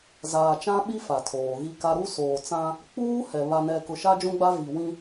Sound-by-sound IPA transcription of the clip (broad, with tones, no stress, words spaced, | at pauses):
zaː˨t͡ʃã˦ɓi˦ fa˨tʰoː˨ɣi˦ka˦ ɾu˦soː˨t͡sã˦ | k͡puː˦hɛ˨ βa˨nɛ˨ kʊ˨ʃa˦d͡ʒũ˦ɡ͡ba˦ vi˨ wĩ˦